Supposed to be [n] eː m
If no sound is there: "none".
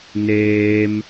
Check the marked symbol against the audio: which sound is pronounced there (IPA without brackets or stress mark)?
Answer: n